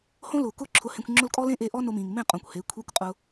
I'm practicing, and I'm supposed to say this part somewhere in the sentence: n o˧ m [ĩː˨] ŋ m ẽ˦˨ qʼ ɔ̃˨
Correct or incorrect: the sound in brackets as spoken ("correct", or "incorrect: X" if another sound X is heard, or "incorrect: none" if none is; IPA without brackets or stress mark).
correct